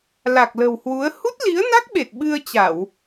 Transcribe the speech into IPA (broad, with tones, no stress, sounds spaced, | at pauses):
l a˨˩ k̚ l ə̤˨˩ w h w u˨˦ ə̯ h u˦˥ t̚ l i˨˦ ə̯ n a˦˥ k̚ ɓ e˨˩ t̚ ɓ ɨ˧ ə̯ t͡ɕ a˧˩˨ w